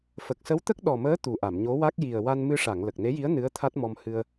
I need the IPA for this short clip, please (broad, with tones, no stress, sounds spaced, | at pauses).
f ə˨˩ k̚ s ə˧˥ w t̪ ə˦˥ k̚ ɗ ɔ˨˩ m əː˧˥ t̪ u˨˩ ʔ a˨˩˨ m ɲ o˧˥ w a˦˥ k̚ j i˨˩ ə̯ w a˧ n m ɨ˧ ʂ a˨˩˨ ŋ l ə˨˩ k̚ n e˧˥ j i˧˥ ə̯ n ɨ˧˥ ə̯ t̪ʰ a˦˥ t̚ m ɔ˧ m h ɨ˧ ə̯